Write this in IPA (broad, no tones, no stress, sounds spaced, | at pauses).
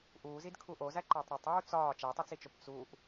ʔ uː z i d kʰ u ʔ o z æ ǃ æ tˤ ɾ o tˤ uː t͡s ɒː t͡ʃ æ tˤ e t͡s i t͡ʃ o p t͡s u ʔ